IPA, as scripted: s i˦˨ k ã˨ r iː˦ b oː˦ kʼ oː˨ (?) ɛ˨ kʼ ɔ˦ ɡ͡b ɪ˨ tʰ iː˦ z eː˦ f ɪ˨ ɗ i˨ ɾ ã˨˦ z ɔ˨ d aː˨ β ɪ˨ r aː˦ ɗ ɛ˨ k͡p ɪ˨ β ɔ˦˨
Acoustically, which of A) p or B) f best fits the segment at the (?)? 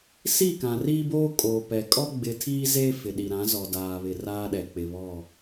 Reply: A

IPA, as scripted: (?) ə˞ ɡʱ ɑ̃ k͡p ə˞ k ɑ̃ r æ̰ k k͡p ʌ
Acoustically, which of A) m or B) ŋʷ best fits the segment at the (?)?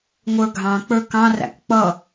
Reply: B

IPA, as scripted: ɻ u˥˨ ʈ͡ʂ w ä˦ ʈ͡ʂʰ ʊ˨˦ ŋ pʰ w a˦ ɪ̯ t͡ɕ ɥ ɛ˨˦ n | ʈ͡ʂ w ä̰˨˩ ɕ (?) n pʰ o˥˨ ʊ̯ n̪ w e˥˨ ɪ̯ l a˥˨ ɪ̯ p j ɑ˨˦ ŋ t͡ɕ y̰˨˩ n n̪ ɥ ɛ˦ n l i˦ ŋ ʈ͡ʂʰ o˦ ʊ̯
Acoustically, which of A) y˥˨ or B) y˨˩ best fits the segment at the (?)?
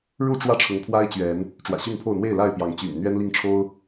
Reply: A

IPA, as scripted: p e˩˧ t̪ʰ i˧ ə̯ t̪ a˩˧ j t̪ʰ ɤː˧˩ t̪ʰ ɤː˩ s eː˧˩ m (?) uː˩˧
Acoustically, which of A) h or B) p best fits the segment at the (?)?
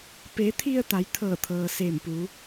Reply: B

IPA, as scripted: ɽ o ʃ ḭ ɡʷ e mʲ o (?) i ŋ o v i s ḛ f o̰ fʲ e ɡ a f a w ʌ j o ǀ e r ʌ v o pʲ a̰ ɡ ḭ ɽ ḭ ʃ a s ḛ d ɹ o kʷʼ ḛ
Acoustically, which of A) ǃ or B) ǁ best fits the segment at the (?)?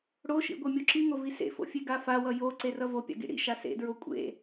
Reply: B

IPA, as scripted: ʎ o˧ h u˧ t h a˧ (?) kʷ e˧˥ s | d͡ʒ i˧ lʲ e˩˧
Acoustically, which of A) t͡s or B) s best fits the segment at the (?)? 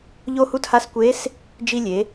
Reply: B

